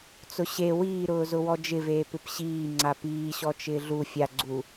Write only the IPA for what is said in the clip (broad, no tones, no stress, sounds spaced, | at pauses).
t͡s ʊ ɕ e w iː ɾ ʊː z ʊ w ɔ d͡ʒ ɪ v eː p ɪ p ɕ iː ŋ͡ǀ a p iː ɕ ɔ t͡ʃ ɪː ɮ u fʲ a ɡ͡ǀ u